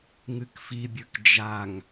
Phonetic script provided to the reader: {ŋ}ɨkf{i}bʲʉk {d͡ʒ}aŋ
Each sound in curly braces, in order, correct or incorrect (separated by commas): correct, correct, correct